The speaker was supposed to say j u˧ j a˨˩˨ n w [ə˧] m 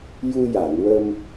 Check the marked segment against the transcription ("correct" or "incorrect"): correct